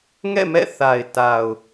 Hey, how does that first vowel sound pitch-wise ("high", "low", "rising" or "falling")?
falling